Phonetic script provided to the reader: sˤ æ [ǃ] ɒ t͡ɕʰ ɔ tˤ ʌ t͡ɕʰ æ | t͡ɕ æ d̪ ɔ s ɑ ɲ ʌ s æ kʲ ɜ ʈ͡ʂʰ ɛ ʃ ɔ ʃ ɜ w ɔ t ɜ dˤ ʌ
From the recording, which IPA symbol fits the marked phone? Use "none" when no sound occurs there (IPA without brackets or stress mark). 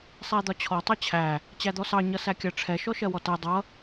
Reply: d̪